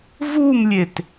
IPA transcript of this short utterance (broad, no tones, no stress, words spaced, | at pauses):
vumlʲet